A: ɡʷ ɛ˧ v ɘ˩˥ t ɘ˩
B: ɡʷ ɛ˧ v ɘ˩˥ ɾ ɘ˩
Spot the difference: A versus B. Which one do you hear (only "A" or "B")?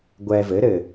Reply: B